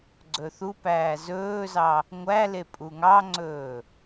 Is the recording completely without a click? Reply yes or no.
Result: no